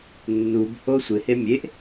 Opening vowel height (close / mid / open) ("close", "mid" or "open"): close